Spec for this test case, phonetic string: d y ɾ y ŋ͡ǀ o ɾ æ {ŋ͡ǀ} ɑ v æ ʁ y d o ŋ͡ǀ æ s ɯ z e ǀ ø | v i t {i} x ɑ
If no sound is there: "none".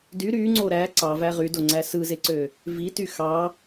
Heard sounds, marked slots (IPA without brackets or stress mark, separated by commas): ǀ, y